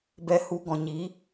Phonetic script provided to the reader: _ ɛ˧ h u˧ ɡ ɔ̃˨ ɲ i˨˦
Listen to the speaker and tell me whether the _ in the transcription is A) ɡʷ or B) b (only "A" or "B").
B